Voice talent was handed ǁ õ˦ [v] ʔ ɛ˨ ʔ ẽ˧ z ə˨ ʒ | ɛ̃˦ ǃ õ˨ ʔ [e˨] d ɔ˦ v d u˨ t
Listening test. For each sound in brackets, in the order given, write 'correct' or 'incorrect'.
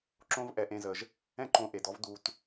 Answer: correct, correct

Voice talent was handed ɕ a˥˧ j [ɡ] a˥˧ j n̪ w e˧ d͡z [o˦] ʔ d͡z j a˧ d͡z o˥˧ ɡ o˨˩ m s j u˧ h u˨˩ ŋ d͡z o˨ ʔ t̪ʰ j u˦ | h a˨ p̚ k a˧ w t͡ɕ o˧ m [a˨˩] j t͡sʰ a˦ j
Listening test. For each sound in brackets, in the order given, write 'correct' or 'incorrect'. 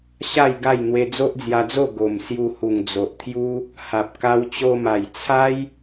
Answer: correct, correct, correct

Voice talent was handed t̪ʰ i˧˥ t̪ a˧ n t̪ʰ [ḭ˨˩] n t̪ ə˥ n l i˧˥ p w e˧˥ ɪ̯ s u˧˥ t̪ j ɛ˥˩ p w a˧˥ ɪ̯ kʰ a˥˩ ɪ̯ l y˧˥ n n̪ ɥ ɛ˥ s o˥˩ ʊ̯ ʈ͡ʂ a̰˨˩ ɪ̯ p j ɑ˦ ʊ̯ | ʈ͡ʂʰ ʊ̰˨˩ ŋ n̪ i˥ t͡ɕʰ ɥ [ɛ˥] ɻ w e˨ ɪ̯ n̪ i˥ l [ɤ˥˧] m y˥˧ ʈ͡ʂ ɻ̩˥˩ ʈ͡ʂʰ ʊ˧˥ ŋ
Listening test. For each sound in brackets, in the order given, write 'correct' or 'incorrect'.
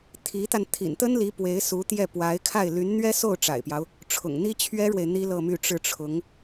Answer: correct, correct, correct

